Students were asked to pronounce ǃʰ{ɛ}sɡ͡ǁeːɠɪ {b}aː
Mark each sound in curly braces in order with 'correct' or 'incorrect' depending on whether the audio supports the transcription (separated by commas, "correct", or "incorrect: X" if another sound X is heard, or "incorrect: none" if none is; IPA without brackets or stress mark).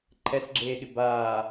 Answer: correct, correct